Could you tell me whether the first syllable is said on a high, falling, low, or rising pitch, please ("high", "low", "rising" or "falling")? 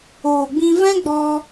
low